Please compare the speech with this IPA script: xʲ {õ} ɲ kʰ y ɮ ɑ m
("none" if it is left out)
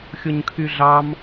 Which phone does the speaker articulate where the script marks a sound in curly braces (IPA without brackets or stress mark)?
o